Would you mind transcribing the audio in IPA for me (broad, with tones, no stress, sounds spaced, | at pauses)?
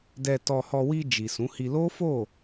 d ɛ˧ t ɔ˧ h ɔ˧ w i˧ d͡ʒ i˨ s ũ˨˦ h i˧ l o˦ f o˦˨